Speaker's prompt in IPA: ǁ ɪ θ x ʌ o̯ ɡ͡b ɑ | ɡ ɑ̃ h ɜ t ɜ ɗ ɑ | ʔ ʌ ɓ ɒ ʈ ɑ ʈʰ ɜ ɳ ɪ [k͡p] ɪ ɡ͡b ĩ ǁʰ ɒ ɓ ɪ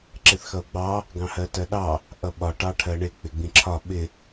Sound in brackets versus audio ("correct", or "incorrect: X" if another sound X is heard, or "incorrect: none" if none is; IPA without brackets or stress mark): correct